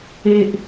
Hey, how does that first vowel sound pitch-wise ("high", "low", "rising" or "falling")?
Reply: low